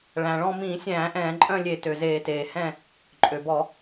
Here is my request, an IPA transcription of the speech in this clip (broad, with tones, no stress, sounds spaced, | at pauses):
ɭ æ̃˩ ɭ ɔ̃˦˨ m ĩː˧˩˧ sʲ æ̃ː˧˩˧ ʔ ɛ̃ː˧˩˧ ǃʼ œ̃˦˨ lʲ e˧˩˧ t ø˩ z eː˧˩˧ t eː˩ h ɛ̃˦˨ | ǃʼ ø˩ b ɔ˧˩˧